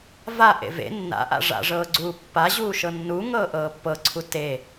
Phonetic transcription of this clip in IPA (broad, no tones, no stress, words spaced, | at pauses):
va ʔḛvḛ nːa̰ʔa̰ ʐa̰ʐɤːɡ͡ǀuː pːa ʑuːʃɤnːu ŋɤːʔɤːpːɤǀʰu te